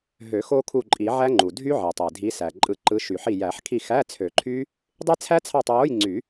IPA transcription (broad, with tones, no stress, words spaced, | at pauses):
ɦø˨˩˦ xo˦˥kʰu˦˨ǃʼi˨˩˦ʕæ˦˥ ŋ͡ǃu˩ dʱy˦˥ʕe˩tˤe˩ dʱi˨˦sæ˩ ǃʼɯ˨˩˦ ǃɯ˨˦ ʃy˨˩˦ħi˦˨ jæ˨˩˦ħkʰi˦˨ xæ˧˥˧t͡sʰø˨˩˦ǃʰy˦˥ | dˤe˦˥t͡sʰæ˦˥t͡sʰɑ˦˨tˤ wo˧˥˧jŋ͡ǀy˨˩˦